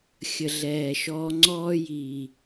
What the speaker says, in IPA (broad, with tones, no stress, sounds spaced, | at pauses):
xʲ ə˨ ɮ ɛː˨ ʃ ɔː˧ ŋ͡ǀ ɔː˦ j iː˨